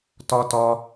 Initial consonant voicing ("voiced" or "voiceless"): voiceless